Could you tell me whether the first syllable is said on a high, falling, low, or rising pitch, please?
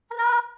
high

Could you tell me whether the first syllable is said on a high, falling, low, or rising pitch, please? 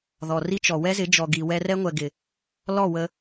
low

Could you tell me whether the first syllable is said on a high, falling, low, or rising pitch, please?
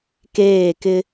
falling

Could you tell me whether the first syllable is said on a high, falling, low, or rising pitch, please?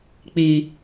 low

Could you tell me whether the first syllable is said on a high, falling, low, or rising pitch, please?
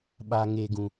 low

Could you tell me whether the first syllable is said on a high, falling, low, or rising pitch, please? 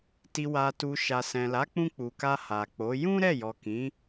low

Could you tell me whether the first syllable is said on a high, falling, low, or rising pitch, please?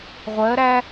rising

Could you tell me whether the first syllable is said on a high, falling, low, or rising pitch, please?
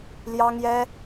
high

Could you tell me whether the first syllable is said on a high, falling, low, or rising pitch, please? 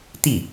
falling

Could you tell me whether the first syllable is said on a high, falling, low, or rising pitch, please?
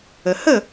low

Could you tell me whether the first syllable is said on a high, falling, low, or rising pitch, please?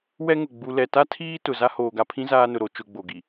high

